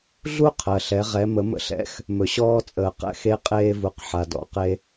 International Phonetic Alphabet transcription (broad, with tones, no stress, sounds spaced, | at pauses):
ɮ u˥ qʰ ɜ˩ ɬ ɛ˩˧ ʁ ɛ˩˧ m ə˩˧ m ə̰˧ ɬ ɛ̰˧˥ x | m ɵ˩ ɕ ɔː˧ t͡sʼ əː˩ q ɛ̰˧ x e˧˥ qʼ eː˧ v u˩˧ q ħ a˩ d ɔ̰˩˧ q e˧